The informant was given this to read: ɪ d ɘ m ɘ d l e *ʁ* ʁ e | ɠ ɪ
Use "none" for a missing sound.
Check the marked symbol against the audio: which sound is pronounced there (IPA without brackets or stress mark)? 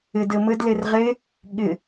r